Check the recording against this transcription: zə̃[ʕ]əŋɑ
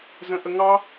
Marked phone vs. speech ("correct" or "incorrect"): incorrect